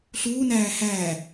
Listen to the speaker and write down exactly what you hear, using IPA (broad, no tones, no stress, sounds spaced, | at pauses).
ɬ uː n æː h æː